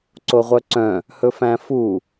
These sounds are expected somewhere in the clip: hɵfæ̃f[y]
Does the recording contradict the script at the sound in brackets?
yes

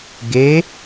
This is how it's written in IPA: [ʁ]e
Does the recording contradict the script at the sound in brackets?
yes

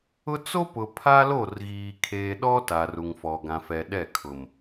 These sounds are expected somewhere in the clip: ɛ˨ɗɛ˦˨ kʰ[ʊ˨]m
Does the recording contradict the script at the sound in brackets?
no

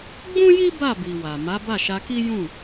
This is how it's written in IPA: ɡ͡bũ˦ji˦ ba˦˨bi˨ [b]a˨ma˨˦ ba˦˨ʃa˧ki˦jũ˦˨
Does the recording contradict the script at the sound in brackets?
yes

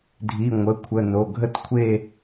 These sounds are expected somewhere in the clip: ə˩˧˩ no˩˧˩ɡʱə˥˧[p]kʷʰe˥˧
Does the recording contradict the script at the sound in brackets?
yes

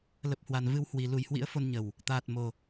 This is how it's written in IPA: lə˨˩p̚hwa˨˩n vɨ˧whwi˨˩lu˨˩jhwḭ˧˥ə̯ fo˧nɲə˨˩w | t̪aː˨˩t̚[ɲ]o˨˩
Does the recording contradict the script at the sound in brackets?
yes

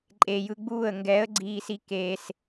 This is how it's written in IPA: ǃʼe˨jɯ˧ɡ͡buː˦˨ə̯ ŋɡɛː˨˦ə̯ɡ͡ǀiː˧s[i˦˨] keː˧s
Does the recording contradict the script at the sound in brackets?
yes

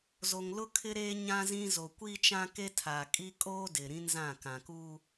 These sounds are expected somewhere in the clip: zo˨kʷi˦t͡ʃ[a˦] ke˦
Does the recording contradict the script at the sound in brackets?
yes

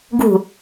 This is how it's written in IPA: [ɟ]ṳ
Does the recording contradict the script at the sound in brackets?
yes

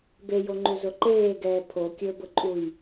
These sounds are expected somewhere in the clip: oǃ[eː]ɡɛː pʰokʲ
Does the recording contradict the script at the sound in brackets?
no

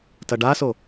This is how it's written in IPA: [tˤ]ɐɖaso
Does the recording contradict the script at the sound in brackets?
yes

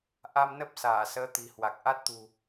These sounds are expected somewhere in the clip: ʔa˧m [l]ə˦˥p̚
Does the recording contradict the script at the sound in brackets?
yes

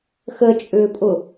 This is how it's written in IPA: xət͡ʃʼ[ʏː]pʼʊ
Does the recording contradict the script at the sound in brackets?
no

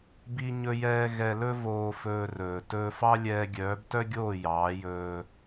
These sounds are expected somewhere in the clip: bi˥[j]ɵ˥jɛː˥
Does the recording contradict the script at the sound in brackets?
yes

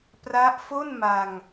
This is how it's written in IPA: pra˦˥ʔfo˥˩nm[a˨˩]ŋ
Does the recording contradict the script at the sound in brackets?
yes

